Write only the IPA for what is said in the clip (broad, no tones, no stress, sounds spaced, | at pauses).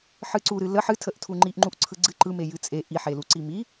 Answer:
ħ ɨ ǀ u ɾ ɨ l ə ħ ɨ tʰ ə ʔ tʰ u ŋ͡ǃ i ʔ ŋ͡ǃ u ʔ ǀʰ ɯ ɡ͡ǀ ɨ ǃ ɯ m e j ɨ t͡sʼ e ʔ i ħ e l u ǀ i m i